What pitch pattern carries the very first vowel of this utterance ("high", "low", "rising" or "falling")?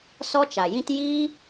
high